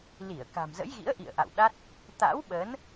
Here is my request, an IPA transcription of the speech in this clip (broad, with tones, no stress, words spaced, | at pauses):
li˧˩ə̯ ka̤˨˩mzə̰˧˥jɣḭ˧˥ə̯ ʔḭ˧˨ə̯ʔa̰˧˨wɗa˦˥t̚ | t̪a̰˧˥wɓə˨˦n